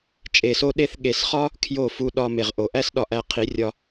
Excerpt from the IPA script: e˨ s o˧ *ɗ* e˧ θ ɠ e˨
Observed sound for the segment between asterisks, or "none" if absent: ɗ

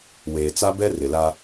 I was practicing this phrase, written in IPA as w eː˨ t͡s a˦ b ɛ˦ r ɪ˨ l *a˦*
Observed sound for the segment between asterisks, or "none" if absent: a˦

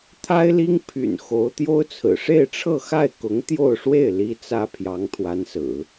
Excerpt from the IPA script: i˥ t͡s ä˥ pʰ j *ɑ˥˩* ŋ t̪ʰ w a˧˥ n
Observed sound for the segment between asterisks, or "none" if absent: ɑ˧˥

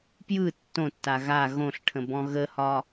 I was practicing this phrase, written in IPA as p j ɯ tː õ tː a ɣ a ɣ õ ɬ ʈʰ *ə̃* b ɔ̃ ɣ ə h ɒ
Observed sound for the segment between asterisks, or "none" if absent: ə̃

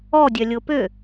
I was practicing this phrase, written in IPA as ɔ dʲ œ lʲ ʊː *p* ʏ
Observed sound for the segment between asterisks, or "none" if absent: p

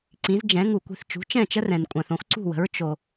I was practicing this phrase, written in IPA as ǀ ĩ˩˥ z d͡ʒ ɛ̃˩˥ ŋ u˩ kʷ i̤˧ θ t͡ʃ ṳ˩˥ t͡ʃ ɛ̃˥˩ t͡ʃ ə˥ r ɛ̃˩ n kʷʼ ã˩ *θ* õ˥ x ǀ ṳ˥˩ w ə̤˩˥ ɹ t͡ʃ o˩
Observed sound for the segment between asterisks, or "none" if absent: θ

